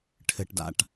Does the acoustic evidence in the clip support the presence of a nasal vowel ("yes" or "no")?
no